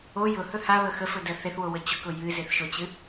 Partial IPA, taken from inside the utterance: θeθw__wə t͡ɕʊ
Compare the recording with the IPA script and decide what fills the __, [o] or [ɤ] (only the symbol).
o